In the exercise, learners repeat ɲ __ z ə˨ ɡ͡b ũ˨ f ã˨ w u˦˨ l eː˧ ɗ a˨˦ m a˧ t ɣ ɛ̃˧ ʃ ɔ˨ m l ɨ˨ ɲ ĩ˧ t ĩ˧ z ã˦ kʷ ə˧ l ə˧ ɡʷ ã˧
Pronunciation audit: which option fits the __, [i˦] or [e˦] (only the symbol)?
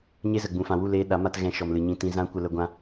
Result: e˦